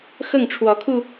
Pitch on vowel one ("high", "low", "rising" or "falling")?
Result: falling